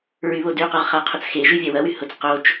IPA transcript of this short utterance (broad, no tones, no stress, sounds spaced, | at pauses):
ɹ y β o d y q ʊ ʁ χ a qʰ ʊ t͡s x e ʒ y vʲ a w ɐ w y h ʊ t͡s q o t͡ʃ